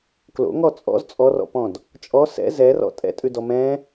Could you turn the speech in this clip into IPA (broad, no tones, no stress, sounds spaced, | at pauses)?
k l o̰ ŋ ɔ t͡sʼ ɔ̰ z t͡sʼ ɔ r ɔ̰ p ɔ̃ d | t͡ʃʼ ɔ s ɛ̰ z ɛ r ɔ̰ tʼ ɛ̰ tʼ ʉ d ɔ m ɛ̃